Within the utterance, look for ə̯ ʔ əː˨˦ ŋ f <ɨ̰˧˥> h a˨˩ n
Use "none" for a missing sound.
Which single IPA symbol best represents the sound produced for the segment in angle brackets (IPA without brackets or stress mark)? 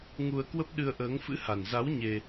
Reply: ɨ̰˧˥